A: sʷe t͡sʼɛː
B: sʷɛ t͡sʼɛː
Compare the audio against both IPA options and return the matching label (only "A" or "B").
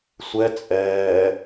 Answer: B